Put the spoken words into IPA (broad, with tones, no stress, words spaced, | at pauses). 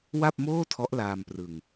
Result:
wa˥˩p̚moː˥˩tʰɔ˦˥ʔ laː˧mprɯ˧ŋ